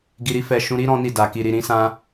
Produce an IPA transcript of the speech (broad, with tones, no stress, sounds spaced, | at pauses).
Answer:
ɡ i˧ ɾ i˦ f ɛ˧ ʃ ũ˧ ɾ i˦ ɾ ɔ̃˦ n i˦˨ d a˨ k i˨ ɾ i˨ ɾ ĩ˨˦ s ã˧